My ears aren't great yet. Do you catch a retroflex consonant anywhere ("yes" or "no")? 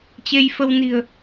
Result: no